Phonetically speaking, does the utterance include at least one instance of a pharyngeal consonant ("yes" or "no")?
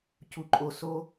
no